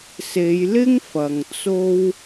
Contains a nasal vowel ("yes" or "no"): no